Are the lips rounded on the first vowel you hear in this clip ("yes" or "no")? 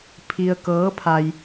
no